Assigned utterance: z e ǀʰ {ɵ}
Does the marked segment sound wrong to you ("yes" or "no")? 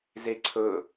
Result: no